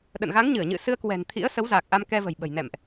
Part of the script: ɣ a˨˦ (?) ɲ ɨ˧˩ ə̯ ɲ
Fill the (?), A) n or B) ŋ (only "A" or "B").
B